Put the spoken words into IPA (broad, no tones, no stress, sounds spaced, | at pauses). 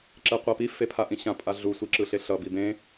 ǁ ɛ qʷ a p i f e pʰ a ʔ ĩ ɕ ã pʼ a ɮ u sʷ i ǁ ɯ ɬ e ɬ ʌ b i b ẽ